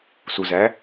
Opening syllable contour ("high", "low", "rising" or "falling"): low